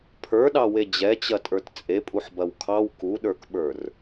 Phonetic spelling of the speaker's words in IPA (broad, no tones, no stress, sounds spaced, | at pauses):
pʰ ə˞ ɗ ɑ w e d͡ʑ ɛ t͡ɕ ɐ tʼ ə˞ t t͡sʼ e pʼ u ħ b ɐ w kʰ ɑ w k u ɗ ə˞ k ɓ ə˞ r